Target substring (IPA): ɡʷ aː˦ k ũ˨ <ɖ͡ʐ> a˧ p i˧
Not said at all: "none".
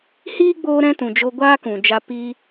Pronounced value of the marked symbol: d͡ʒ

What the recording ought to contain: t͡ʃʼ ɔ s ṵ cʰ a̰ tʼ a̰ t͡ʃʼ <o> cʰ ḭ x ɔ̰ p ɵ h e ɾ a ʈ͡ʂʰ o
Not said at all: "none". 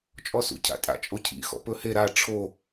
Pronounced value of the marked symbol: o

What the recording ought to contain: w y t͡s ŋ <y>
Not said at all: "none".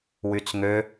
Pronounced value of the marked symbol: ø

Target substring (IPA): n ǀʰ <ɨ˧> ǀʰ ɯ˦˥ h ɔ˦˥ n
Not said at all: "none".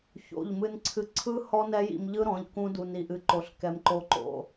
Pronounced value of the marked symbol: ɨ˧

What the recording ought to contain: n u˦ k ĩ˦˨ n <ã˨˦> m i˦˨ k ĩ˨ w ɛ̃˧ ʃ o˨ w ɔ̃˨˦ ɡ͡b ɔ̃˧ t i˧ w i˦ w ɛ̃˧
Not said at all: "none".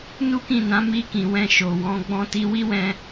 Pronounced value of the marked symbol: ã˨˦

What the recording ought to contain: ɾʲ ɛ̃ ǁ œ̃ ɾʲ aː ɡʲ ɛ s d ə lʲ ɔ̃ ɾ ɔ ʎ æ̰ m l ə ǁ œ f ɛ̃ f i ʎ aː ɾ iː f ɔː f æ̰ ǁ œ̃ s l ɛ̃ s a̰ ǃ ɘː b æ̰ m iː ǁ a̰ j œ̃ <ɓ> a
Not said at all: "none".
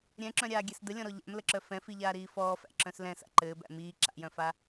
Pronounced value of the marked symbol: f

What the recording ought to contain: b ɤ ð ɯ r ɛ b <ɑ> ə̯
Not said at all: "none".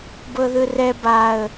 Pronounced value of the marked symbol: a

